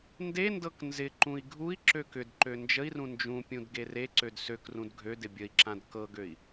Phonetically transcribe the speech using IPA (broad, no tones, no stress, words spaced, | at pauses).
ndendɤk nzɪǃũi̯ ɡʱui̯ǁøk ʏdǃø nd͡ʒəi̯rũ nd͡ʒũpʲũd ɡereǀød søkrũd ɡʱødɪ bʲəi̯ǁãd kɤɡøi̯